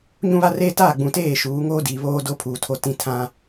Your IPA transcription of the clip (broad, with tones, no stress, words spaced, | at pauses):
ɲũ˦βa˦reː˦ taː˦˨ɡ͡bũ˨ teː˦˨ʃuː˨˦ŋoː˦diː˨ βoː˦do˦pʰuː˨tʰo˨ tĩ˨tʰã˨